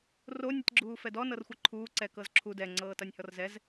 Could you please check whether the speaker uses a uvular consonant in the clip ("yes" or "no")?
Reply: no